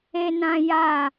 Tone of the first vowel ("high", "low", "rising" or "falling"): high